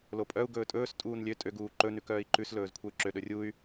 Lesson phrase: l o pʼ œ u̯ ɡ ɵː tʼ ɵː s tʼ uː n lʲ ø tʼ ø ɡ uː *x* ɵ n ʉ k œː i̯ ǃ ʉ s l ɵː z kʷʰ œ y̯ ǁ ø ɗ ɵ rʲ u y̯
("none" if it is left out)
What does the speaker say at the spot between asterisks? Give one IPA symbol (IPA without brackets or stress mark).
ǃ